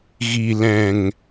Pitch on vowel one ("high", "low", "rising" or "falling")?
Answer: low